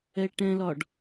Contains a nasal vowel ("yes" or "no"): yes